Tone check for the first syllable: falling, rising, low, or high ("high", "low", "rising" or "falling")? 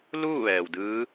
falling